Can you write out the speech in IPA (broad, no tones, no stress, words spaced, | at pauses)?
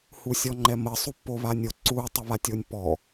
husʲɔŋ͡ǃɛmə sˤupːoβanʲo ǀu tˤɯβatʲonʲpːɔ